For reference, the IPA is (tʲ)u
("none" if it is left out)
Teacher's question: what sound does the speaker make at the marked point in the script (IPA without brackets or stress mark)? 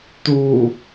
t